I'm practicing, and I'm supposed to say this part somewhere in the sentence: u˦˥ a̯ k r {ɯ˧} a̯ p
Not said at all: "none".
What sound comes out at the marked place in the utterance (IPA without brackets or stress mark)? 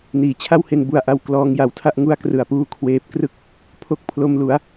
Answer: ɯ˨˩